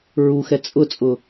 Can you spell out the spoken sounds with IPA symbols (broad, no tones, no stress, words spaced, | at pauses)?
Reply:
ɹuxɛ t͡sʼʊt͡sʼʊ